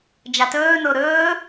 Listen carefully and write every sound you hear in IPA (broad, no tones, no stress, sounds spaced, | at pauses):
d͡ʒ a t ɵː n o ɾ ɵː